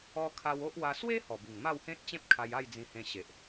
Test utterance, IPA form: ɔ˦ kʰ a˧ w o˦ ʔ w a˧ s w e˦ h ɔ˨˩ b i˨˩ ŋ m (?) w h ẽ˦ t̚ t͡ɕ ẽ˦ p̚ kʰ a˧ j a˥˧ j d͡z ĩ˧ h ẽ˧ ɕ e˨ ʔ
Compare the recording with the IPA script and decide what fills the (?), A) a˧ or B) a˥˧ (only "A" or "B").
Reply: B